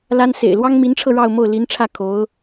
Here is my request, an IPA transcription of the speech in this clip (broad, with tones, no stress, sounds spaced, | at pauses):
l a˥ n s ḛ˨˩ ɪ̯ l w ɑ˥ ŋ m i˧˥ n ʈ͡ʂʰ ɤ˧ ɻ ɑ˥˧ ʊ̯ m o˥˩ ʊ̯ l i˧˥ n ʈ͡ʂʰ ä˥˩ kʰ o˧˥ ʊ̯